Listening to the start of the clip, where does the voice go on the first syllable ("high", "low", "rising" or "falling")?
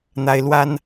high